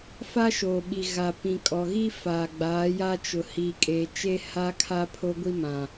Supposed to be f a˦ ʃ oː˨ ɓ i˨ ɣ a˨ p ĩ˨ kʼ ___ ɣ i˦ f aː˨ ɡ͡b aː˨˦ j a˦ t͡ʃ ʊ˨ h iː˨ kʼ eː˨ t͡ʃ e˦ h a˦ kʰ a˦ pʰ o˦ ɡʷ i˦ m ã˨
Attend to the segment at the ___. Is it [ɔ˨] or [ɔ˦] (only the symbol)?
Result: ɔ˨